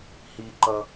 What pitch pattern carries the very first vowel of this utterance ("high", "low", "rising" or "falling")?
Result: high